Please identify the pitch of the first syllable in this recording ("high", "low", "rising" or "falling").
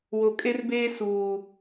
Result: low